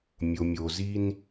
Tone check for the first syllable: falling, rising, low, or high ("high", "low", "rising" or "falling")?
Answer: low